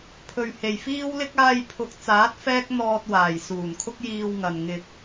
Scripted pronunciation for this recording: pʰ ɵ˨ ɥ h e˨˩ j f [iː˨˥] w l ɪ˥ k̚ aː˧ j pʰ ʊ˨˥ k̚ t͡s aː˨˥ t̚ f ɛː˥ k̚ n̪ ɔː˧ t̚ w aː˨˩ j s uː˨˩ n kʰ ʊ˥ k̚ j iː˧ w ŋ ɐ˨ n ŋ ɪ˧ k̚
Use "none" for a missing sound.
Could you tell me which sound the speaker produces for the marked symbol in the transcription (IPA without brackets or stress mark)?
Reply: iː˥